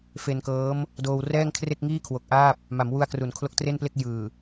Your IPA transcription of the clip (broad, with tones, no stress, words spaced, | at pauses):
fe˧nkɤː˦˥m | doː˧w rɛː˥˩ŋkʰre˥˩k̚ŋiː˥˩kʰwo˨˩k̚ ʔaː˥˩p̚ | ma˩˦mwu˧a̯kru˩˦n kʰlo˦˥k̚tre˥˩nple˥˩k̚ jɯː˨˩